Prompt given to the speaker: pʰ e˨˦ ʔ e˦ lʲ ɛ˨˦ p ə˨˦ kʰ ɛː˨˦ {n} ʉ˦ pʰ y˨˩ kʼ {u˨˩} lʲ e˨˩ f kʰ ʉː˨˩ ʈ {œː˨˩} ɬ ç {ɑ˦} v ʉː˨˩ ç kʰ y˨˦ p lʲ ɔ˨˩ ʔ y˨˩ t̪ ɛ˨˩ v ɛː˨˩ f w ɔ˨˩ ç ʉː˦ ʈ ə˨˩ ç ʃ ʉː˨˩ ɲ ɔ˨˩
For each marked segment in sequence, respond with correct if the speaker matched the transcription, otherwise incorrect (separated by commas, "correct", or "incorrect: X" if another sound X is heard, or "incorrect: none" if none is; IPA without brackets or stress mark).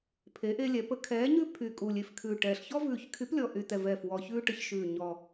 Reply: incorrect: ɲ, correct, incorrect: ɛː˨˩, incorrect: ɔ˦